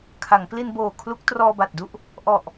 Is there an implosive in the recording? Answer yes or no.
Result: no